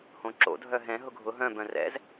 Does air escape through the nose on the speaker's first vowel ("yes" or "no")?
yes